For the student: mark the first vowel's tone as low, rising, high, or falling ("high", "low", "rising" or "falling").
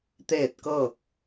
falling